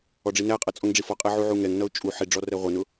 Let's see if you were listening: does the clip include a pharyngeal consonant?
yes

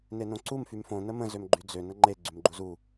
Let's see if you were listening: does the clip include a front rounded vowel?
yes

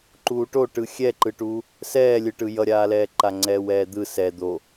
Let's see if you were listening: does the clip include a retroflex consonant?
yes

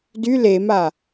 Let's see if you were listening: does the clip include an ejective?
no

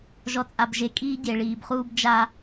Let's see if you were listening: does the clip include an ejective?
yes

